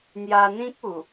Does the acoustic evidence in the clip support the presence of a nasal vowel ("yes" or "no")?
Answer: yes